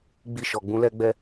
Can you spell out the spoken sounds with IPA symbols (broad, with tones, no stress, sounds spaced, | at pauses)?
ɡ͡b i˧ ʃ ɔ˨ ɡ͡b ũ˨˦ l ɛ˦ ɡ͡b ɛ˦